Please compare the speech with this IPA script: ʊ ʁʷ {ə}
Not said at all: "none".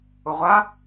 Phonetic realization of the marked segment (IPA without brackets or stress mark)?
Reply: a